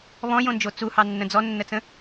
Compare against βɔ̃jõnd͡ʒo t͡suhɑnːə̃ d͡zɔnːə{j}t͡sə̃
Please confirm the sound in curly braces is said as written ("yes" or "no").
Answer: no